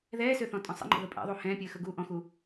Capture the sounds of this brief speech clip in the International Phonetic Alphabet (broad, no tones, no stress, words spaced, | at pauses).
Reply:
ðɛːsøθɔ̃tʼɔ̃ sˤə̰ŋ͡ǃə̰ðə pʼɛ̰ðˤu hɛ̃ːpʲəːxəɡuː ʔɔ̃xu